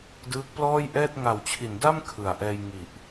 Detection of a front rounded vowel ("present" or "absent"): absent